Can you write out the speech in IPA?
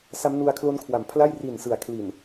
s a˦˥ m n u˧ a̯ kʰ l o˦˥ n kʰ w a˨˩ m pʰ l a˥˩ j r i˨˩ n s ɯ˩˦ a̯ kʰ l i˨˩ n

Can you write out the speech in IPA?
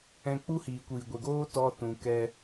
ɛ̃˧ k͡p u˦ h iː˨ kʷ iː˨ ɡʷ e˨ ɡ oː˦ t ɔ˦ t ũ˨ k ɛ˧

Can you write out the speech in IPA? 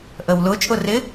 ʔ ə w l ʊ t͡ʃʼ ʊ r ɪ

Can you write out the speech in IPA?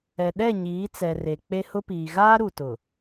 ɛ˨ ɗ ɛ˦˨ ɲ iː˨˦ t͡s ɛ˨ r e˨ k͡p e˦ h ʊ˦ p iː˨ ɣ aː˦ ɾ u˨ t ʊ˨

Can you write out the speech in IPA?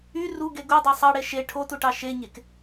y r u ɡ e ɡ u dˤ o sˤ ɑ ɽ e ʃ e ʈʰ o t u ʈ ɑ ʃ e ɲ e k

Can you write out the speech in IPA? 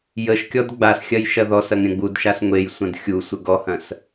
j ə ʃ kʲ ɔ d ɡ͡b a s xʲ ɐ j ʃ ɐ ð ɔ s ɐ ŋ ɾʲ ɐ̃ ɡ͡b u d ʃ a s ŋʷ e j sʷ ɐ̃ d xʲ u sʷ ə ɡ ɔ h ɐ̃ s

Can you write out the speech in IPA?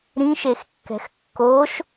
ɾ ĩ ʃ e x kː ɛ̤ x kː o ʃ

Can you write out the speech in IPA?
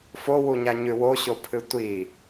f o w u ɲ a ɲ ʉ w o ɕ o pʰ ɨ tʷ i

